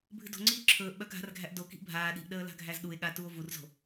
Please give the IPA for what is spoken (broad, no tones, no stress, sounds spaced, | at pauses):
bʱ ɨ d o̤ ŋ͡ǀ iː ǁʰ ɵː ʔ ɓ œ ɡʱ a̤ r ɡʱ æ ʔ d o k i̤ ʔ bʱ aː ɗ i̤ ʔ ɗ əː l a̤ ɡʱ æ z ɗ u e̯ ɠ a t u o̯ v u r z o̤